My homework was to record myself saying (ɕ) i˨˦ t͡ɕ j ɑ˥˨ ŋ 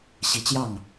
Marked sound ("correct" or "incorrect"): correct